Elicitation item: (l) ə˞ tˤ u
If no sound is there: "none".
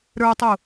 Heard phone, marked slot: ɾ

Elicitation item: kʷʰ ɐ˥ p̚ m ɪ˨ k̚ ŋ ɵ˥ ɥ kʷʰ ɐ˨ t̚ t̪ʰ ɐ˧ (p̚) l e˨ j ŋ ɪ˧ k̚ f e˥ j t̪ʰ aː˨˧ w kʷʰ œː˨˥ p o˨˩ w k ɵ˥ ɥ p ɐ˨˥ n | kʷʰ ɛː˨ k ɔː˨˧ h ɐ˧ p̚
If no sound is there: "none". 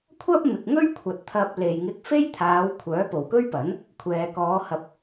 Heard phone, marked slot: p̚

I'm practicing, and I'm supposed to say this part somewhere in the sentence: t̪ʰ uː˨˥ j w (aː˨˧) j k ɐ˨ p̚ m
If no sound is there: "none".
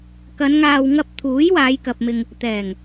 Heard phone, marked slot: aː˨˧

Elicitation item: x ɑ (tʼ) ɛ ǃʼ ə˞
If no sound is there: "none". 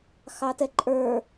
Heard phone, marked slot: t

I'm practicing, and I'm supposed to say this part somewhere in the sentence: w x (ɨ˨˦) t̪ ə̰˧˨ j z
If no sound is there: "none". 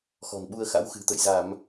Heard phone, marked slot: ɨ̤˨˩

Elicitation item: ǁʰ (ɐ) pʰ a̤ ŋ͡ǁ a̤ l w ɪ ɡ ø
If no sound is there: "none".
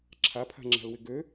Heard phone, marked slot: a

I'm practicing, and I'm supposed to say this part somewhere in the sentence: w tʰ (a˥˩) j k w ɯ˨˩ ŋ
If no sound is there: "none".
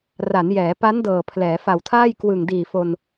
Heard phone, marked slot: aː˥˩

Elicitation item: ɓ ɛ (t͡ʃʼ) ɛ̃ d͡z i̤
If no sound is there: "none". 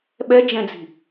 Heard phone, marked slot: d͡ʒ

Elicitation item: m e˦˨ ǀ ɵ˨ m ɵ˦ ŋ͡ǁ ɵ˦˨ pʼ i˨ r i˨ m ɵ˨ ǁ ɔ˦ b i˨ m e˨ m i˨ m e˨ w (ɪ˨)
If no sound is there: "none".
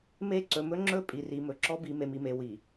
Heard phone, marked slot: i˨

